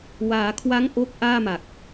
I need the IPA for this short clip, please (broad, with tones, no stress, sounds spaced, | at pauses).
w aː˩˦ kʰ w a˦˥ ŋ ʔ o˦˥ k̚ ʔ aː˥˩ m a˨˩ k̚